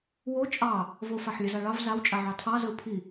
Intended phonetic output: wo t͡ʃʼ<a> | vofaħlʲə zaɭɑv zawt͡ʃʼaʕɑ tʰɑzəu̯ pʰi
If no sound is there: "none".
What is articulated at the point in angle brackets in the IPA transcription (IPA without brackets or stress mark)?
ɑ